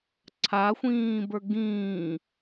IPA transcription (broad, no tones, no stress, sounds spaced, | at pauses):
ǀʰ a xʷ ĩː b ə˞ ɡ ĩː